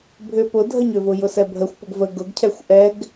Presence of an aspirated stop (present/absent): present